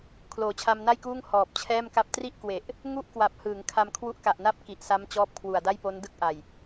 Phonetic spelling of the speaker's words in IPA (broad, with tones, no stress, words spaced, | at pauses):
kʰloː˩˦t͡ɕʰa˧mna˥˩jkuː˥˩ŋ hɔː˨˩p̚t͡ɕʰɛː˥˩mka˥˩p̚ tri˥˩ʔkwe˨˩ʔ | ŋu˥˩ʔkwa˨˩p̚hɯː˩˦ŋ kʰa˧mkʰwu˦˥ʔka˨˩ʔna˥˩p̚ ki˨˩ʔsa˦˥m t͡ɕɔː˦˥p̚kʰwu˨˩a̯da˥˩jpo˦˥n dɯ˥˩k̚ʔa˨˩j